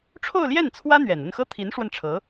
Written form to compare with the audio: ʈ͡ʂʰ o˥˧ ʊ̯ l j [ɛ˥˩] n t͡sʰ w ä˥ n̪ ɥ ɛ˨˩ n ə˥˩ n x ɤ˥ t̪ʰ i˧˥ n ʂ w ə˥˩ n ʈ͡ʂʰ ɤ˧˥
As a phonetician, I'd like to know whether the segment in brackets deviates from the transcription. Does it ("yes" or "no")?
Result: no